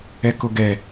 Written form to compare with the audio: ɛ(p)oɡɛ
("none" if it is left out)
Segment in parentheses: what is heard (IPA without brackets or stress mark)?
k